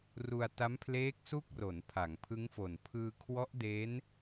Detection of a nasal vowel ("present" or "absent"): absent